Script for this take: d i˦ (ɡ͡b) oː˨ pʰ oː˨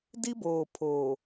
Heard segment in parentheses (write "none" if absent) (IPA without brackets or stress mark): b